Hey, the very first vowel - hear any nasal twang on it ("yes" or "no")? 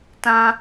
yes